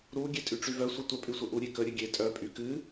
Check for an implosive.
absent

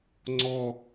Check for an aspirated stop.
absent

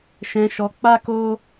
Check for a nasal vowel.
present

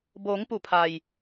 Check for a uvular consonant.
absent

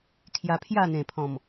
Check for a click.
absent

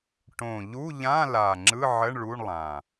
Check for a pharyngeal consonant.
present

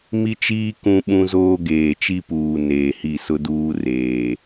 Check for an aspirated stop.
absent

